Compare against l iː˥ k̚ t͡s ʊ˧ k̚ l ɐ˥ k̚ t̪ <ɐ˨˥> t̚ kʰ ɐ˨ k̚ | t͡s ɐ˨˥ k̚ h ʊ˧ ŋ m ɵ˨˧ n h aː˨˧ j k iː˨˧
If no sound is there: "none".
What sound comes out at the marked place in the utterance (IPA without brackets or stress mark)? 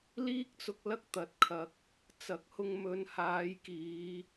ɐ˨˥